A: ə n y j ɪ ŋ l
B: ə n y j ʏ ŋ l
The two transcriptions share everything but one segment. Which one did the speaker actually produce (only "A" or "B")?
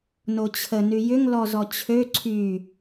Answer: B